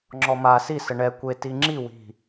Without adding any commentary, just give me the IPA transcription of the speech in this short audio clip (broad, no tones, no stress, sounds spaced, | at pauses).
ŋ͡ǁ ɔ m a s i s ə ɳ ɛ kʷ e t i ŋ͡ǁ i w i̤